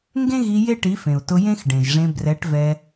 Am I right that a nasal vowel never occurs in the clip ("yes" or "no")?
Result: no